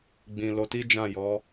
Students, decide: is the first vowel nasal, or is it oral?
nasal